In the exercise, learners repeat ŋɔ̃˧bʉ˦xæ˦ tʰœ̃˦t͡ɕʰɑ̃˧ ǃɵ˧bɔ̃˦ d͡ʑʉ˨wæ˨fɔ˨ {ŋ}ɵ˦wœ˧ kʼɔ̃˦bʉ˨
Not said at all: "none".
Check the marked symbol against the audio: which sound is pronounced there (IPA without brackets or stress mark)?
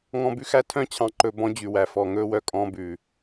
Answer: ŋ